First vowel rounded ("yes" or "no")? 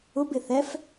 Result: yes